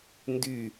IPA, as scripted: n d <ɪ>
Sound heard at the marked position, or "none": y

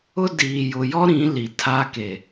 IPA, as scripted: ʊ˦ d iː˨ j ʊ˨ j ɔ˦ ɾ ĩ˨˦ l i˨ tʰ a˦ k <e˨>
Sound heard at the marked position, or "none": e˨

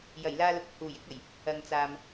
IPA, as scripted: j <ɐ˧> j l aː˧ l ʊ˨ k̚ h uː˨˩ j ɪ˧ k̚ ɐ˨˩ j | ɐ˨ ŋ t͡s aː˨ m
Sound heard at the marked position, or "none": ɐ˨˩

